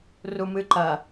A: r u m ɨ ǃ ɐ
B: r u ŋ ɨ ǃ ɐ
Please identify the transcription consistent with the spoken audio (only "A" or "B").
A